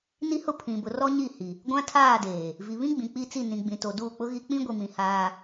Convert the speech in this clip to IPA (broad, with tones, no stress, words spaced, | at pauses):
ni˦hʊ˦ pʰĩ˨bʊ˨ rɔ˦ ɲi˦˨hi˨ | ɡʷã˦tʰaː˦˨ deː˨ | vi˨βĩ˦ ɡ͡bĩ˨k͡pi˦t͡si˦˨ nĩ˨ɡ͡bĩ˨to˨ duː˦˨k͡pʊ˦ɣi˦ k͡pĩ˦ɡʷi˨mĩ˨ haː˦